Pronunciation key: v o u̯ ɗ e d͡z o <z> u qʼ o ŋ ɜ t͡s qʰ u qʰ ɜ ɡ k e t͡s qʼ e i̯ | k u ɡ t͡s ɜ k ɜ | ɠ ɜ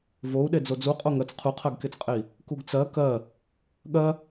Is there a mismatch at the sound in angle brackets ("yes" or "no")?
yes